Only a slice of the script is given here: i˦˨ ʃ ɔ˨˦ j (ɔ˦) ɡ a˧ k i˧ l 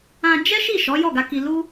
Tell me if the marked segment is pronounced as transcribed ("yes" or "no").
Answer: no